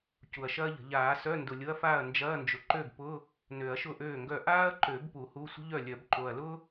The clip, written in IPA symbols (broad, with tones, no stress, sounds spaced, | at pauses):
c u˨˩ ɐ̯ ʃ ɐː˥ ʎ ə̤˨˩˦ ʎ aː˨˩˦ s œ˧˥˧ n d ʊ˨˩ lʲ ʊ˧˥˧ ɐ̯ f aː˥˩ ɐ̯ n d͡ʒ ɐː˧˥˧ n d͡ʒ ʊ˩˥ ǃ ø˥˩ b p ʊ˧˥˧ | n ø˨˩˦ ɐ̯ ʃ ʊ˥˩ ʔ øː˥˩ ŋ ɡ œ˥˩ ʔ aː˥ ɐ̯ ǃ ø˨˩˦ b p u˨˩˦ h u˧˥˧ sʷ ə̤˥ ʎ œ˥˩ lʲ œ˨˩˦ b ǃ o˨˩ ɐ̯ l ʊ˥